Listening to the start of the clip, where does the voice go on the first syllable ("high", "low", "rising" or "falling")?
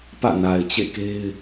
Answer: falling